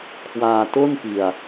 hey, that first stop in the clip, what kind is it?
aspirated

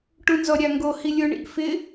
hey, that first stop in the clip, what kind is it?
plain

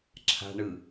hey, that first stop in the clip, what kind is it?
click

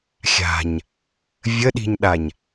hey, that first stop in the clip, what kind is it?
implosive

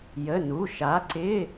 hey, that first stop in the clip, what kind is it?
click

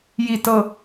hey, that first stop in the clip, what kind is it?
plain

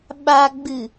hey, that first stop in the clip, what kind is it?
implosive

